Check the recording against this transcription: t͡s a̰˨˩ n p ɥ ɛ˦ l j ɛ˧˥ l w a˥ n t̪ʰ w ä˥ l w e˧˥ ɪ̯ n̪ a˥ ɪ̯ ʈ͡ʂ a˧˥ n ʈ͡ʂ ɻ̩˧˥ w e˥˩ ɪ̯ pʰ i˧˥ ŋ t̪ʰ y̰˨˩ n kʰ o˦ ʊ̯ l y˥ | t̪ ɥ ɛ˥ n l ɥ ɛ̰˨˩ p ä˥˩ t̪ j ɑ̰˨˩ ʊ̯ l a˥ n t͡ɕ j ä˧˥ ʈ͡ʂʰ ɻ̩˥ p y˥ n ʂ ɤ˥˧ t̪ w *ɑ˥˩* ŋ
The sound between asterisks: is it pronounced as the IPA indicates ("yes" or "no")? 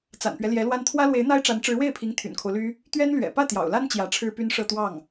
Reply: yes